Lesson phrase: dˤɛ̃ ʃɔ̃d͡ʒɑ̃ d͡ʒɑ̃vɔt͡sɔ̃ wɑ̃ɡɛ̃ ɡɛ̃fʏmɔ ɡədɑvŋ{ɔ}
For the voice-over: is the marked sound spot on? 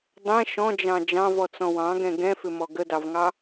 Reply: no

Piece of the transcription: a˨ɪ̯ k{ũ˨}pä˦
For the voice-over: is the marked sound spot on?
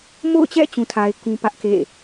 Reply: no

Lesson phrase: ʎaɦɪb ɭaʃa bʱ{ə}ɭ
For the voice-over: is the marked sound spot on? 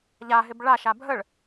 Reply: yes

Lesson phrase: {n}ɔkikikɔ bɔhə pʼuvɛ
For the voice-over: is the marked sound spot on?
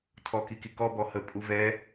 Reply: no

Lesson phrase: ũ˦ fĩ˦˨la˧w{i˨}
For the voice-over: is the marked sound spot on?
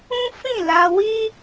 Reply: no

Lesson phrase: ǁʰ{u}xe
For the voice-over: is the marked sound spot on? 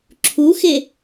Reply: yes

